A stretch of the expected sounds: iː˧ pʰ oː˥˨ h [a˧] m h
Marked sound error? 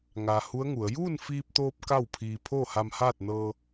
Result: no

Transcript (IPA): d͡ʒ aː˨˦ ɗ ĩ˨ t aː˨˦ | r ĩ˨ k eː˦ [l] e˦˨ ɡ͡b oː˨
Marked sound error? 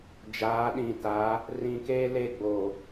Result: no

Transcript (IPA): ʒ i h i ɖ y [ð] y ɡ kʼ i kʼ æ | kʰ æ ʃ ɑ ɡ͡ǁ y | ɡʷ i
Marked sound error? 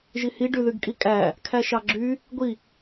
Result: no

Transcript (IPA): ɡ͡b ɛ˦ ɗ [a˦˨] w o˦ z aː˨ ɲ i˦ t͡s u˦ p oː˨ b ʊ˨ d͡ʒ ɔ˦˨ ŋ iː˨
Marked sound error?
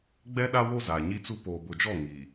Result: yes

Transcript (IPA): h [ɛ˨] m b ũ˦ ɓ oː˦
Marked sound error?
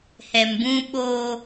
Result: no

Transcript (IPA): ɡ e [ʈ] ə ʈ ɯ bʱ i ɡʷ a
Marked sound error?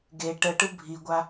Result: no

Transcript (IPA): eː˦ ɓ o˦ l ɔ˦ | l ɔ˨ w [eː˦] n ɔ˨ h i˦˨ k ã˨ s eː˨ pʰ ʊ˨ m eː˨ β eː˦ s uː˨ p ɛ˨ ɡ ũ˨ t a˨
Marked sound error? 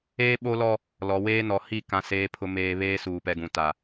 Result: no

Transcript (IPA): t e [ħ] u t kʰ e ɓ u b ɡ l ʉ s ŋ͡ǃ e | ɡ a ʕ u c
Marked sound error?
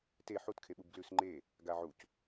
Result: no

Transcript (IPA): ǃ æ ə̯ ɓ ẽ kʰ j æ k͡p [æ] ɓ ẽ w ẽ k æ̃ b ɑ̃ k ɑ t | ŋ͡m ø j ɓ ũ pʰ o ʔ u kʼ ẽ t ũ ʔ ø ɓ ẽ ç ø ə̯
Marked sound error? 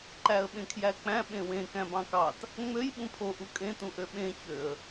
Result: yes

